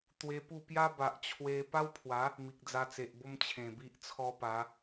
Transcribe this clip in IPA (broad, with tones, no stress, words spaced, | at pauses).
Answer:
t̪we˧pu˥˧ pja˦ba˨ʔt͡ɕʰwe˧ pa˦wpʰwa˨˦ | mi˨k̚d͡za˧t͡se˨ʔbo˦m t͡ɕʰẽ˨˩bi˦ʔ t͡sʰɔ˦pa˨˦